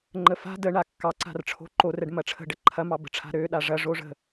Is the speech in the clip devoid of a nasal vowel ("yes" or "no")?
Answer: yes